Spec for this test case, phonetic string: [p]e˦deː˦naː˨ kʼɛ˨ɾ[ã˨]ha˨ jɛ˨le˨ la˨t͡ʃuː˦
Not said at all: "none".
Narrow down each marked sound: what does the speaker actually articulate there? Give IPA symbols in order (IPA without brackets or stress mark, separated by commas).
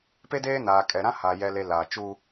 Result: p, ã˦